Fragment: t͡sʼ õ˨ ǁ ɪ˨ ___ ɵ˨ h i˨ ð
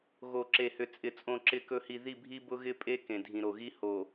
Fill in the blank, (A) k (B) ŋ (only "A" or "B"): A